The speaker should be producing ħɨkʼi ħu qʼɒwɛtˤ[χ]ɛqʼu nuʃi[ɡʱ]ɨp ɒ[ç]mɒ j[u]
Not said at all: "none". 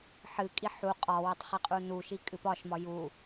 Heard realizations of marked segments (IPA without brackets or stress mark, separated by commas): χ, kʼ, ʃ, u